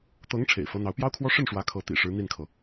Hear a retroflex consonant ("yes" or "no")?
yes